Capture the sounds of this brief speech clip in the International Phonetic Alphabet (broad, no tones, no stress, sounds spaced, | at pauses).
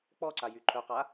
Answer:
k͡p ɔ ǀ a j y ǃʰ œ q a